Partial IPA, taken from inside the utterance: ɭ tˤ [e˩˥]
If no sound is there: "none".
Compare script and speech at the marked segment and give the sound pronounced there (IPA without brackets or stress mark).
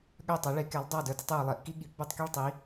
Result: i˩˥